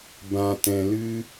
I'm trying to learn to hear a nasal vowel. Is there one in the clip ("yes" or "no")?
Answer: yes